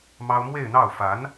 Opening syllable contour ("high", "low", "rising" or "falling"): high